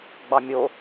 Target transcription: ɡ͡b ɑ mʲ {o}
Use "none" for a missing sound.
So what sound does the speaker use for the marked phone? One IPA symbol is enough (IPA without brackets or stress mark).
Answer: o